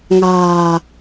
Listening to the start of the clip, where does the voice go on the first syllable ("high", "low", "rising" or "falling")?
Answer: low